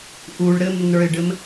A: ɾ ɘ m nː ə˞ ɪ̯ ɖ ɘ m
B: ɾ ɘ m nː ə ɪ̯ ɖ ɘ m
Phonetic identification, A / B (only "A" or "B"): A